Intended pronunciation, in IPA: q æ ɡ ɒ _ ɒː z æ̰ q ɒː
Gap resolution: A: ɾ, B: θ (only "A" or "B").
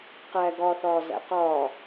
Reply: B